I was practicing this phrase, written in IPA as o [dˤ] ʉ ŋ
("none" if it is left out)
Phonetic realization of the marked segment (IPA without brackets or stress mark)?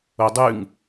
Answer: dˤ